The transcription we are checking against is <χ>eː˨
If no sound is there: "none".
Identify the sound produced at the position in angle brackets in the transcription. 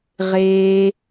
ʁ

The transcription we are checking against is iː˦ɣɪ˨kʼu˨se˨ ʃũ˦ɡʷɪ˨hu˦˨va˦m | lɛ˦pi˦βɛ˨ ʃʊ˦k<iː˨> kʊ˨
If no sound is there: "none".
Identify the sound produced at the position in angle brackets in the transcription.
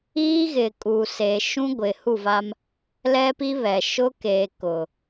eː˨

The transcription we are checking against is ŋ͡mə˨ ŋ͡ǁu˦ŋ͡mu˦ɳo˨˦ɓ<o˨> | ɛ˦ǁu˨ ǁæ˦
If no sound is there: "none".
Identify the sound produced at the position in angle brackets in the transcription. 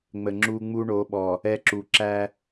ɔ˨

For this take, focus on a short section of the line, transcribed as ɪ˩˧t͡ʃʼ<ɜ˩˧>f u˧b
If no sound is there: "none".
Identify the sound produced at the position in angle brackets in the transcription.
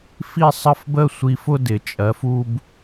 ɜ˩˧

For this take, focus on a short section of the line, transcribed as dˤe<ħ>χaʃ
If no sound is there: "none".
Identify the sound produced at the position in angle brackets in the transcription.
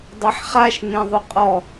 ħ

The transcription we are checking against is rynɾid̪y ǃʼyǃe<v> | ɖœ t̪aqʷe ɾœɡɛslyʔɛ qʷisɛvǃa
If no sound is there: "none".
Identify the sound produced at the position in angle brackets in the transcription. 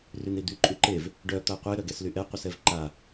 v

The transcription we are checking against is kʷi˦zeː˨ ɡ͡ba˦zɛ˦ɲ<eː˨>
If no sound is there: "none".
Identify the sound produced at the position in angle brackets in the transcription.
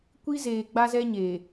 eː˨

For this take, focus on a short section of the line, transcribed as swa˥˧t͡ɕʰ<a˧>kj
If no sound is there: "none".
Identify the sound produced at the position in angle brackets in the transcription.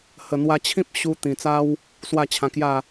ã˧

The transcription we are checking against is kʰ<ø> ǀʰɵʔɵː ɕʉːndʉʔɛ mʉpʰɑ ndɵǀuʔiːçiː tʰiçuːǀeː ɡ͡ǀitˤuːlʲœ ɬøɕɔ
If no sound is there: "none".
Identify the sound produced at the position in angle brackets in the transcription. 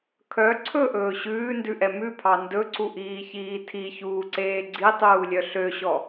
œ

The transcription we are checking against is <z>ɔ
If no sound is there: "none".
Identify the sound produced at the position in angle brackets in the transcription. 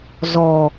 z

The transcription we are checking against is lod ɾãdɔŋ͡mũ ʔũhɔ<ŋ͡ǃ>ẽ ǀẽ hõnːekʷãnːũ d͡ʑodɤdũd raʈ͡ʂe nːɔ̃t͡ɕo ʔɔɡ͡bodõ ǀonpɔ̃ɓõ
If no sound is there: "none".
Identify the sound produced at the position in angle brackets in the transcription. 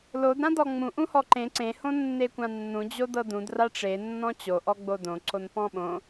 ǃ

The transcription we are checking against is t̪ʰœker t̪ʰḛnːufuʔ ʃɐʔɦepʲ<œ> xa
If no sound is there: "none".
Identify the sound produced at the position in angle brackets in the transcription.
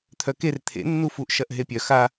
œ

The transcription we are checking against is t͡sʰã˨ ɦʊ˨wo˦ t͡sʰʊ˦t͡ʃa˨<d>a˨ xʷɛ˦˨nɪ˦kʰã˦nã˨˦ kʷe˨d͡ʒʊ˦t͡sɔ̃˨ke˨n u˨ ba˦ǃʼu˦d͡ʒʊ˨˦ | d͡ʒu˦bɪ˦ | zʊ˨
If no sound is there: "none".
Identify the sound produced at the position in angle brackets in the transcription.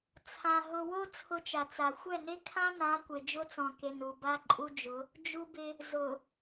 t͡s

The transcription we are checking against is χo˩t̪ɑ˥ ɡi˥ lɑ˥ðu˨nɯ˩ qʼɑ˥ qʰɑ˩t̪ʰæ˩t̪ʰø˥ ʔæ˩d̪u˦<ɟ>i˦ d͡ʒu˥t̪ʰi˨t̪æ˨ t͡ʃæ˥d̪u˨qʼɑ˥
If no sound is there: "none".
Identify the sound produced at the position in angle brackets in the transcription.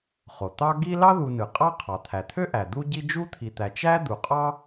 ɟ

